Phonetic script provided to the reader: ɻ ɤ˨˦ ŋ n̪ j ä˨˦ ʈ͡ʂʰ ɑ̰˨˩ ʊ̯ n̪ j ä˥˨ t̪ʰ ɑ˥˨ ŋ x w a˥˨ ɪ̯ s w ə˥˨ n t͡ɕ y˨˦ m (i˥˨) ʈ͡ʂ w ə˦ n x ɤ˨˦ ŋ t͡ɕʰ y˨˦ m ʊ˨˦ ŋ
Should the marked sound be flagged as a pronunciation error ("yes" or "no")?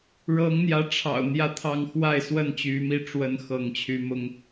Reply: no